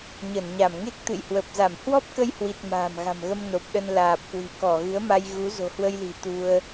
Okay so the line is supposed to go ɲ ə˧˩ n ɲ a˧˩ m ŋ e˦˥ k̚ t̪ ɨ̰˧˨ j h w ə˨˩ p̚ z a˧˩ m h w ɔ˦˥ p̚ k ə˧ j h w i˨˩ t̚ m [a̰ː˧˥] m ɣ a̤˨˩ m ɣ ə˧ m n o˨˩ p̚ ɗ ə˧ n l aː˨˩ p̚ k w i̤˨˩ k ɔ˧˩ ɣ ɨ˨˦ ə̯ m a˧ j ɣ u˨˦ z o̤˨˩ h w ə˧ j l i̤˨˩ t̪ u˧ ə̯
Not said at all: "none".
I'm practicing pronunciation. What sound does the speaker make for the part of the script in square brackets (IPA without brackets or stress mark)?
a̤ː˨˩